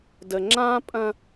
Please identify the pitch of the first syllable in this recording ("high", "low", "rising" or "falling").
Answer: low